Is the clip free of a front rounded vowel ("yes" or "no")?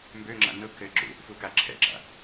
no